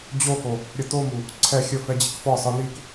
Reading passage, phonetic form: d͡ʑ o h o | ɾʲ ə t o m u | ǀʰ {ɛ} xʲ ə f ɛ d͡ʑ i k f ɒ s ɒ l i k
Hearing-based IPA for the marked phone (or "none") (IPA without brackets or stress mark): ɛ